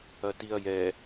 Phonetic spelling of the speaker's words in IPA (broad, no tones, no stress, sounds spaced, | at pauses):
ɐ t i ɐ̯ j ɛ